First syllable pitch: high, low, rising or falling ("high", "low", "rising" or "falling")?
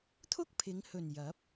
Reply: high